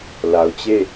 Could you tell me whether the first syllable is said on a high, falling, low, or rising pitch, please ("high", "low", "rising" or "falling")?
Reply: low